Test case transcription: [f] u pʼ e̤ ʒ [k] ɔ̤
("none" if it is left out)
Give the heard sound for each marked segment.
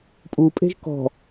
pʼ, k

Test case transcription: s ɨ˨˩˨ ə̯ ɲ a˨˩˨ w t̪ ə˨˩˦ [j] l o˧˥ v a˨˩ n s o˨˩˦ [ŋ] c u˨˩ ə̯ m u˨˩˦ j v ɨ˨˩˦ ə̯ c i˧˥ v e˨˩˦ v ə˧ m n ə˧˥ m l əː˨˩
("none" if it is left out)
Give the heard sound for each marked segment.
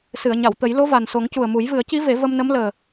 j, ŋ

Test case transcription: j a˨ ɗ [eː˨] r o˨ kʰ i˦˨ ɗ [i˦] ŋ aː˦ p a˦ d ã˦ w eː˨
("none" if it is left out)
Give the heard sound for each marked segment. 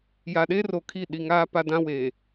eː˦, i˨

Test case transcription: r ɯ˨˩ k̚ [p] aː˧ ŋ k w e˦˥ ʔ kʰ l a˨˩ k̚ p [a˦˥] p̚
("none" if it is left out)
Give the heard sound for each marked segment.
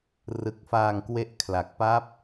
f, a˦˥

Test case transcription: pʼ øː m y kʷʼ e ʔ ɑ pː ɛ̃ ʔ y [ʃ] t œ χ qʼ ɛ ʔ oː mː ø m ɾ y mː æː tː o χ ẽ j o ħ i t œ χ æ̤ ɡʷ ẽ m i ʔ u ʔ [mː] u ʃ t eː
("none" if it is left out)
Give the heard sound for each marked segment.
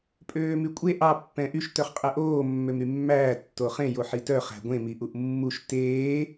ʃ, mː

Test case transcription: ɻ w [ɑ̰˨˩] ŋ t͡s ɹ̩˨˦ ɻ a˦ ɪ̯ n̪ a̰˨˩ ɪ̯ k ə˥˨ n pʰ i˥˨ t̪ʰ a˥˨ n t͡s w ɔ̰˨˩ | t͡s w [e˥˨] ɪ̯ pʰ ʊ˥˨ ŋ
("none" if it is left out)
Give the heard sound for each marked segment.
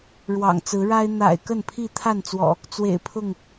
ɑ̰˨˩, ḛ˨˩

